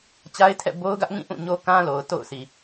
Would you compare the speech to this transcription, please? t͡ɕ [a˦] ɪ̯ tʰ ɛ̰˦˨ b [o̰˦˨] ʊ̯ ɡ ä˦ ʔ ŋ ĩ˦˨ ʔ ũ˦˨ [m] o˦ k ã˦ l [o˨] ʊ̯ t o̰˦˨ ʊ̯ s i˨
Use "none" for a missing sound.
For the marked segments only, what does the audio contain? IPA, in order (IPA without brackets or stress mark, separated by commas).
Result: a˦, o˦, ɲ, o˨